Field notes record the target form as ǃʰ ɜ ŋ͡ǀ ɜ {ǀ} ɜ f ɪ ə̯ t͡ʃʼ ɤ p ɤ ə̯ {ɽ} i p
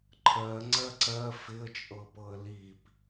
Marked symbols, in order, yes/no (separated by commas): yes, no